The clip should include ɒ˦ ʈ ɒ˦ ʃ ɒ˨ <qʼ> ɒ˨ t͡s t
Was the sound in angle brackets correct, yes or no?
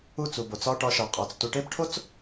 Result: yes